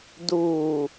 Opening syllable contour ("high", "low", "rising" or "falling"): low